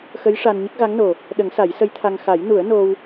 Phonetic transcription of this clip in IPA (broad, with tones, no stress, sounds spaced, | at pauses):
x ə˧˥ j ʂ a˧ n ɲ ə˦˥ k̚ ɣ a˧˥ ŋ n o˨˩ | ɗ ə˨˩˦ ŋ s a˨˩˦ j s ə˧˥ j t̪ʰ a˧ ŋ x a˨˩˦ j n u˨˩˦ ə̯ n o˧ w